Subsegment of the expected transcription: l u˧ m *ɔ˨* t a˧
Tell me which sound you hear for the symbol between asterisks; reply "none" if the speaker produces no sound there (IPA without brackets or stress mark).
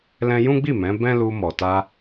ɔ˨